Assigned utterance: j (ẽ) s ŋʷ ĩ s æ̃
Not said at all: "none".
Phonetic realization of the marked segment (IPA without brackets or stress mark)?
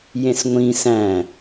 ẽ